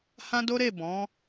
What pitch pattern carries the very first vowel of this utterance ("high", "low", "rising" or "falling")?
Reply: high